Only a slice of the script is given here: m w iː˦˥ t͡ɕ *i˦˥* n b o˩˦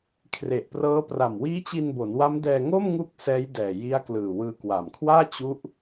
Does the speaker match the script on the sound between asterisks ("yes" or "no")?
no